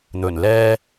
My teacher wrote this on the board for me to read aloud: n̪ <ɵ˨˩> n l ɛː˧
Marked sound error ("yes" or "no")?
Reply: no